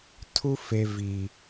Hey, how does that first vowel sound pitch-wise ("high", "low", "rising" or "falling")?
high